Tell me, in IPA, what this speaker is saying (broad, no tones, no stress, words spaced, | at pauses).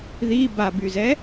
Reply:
ði babyzɛ